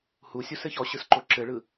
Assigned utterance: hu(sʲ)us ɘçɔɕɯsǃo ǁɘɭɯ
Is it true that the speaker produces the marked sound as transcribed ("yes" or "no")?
yes